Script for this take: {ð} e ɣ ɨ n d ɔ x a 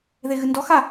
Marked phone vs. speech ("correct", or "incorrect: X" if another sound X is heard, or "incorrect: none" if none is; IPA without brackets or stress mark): correct